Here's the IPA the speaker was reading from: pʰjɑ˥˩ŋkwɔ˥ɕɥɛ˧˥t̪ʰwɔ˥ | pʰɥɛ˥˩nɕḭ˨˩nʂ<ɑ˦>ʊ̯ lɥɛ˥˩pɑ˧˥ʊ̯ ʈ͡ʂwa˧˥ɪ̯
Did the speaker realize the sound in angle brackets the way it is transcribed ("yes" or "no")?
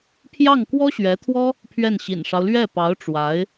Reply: yes